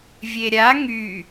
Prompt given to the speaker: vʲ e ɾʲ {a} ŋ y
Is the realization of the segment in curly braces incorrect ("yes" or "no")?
no